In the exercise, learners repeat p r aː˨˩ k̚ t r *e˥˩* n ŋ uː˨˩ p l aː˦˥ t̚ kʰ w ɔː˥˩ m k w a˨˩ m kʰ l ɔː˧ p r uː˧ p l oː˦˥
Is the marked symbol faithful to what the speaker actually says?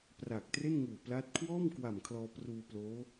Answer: yes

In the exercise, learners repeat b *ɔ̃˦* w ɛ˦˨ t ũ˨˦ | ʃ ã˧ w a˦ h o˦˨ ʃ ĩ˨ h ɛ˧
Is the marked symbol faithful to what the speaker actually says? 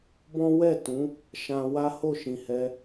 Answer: yes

